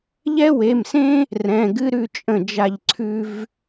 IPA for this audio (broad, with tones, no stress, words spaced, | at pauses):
ʎɛ˥we˩˧˩msẽ˥ | rɛ̃˩˧˩ɡɨ˥ɾʉ˥˨ t͡ʃʼə̃˥˨d͡ʒa˥˨ʎ ǀʰʉ˥v